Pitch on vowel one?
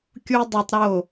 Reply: high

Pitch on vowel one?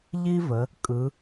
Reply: high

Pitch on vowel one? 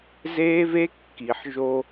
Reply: high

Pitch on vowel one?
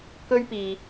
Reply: high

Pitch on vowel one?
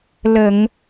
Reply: low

